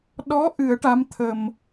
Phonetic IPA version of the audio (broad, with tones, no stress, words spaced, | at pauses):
ɗɔ˧˥ ʔɨ˨˩˦ə̯ʈa˧˥m t̪ʰə˨˩m